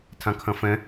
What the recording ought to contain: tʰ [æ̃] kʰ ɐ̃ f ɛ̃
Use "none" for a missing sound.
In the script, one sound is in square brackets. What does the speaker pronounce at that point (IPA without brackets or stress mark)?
ã